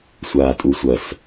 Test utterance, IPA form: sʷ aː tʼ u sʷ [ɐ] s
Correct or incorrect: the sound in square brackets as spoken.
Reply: correct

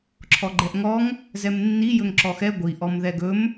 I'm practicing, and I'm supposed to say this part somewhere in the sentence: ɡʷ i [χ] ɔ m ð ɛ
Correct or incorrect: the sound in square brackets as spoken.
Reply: incorrect: ʔ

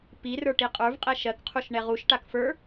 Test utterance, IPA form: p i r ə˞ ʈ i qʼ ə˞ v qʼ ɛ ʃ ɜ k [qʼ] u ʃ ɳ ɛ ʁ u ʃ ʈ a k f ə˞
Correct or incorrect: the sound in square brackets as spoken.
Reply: incorrect: qʰ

